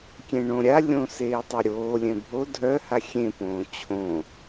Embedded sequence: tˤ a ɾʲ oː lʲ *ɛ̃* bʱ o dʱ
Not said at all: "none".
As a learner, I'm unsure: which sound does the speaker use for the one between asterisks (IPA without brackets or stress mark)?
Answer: ɛ̃